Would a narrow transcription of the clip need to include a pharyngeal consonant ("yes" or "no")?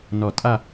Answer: no